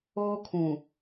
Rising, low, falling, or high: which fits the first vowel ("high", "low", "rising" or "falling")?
high